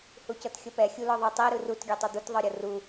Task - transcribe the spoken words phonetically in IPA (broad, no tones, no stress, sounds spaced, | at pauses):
h u c ɤ t xʲ ɤ p ɛ xʲ u l ɔ ðˤ ɤ tˤ i ɾ ɯ r u t ɡʲ ɔ tˤ u d̪ u t ðˤ ɤ ɾʲ ɤ r u